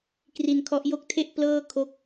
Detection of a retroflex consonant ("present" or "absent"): absent